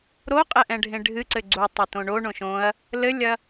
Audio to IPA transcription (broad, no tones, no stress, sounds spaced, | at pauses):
ɾ o qʼ ɛ ʔ ɛ̃ ɖʱ ẽ ɖʱ ɨ ǀ ɘ ɡ͡ǀ u tˤ e t õ ɳ o ɳ õ ʃ õ ɐ̯ | l ɘ lʲ ɐ